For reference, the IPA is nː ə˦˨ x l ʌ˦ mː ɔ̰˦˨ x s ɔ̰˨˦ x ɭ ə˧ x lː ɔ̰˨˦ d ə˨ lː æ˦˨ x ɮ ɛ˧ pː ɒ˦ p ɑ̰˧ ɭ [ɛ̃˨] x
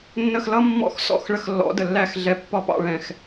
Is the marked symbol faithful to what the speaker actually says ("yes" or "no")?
yes